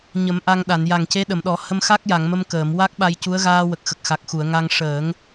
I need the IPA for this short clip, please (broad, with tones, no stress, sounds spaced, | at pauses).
ɲ ə˨˩˦ m ʔ a˧ ŋ ɗ a˨˩˨ n j a˨˩ ŋ c e˧˥ ɗ ə˨˩˨ m ɗ ɔ˨˩˦ h ə˧ m x a˦˥ k̚ j a˨˩˨ ŋ m ə˧ m k əː˨˩˨ m w a˦˥ k̚ ɓ a˧ j c u˧˥ ə̯ ɣ aː˧ w ə˨˩ k̚ x ə˨˩ k̚ x a˨˩ k̚ x u˨˩˨ ə̯ ŋ a˧ ŋ ʂ əː˨˩˦ ŋ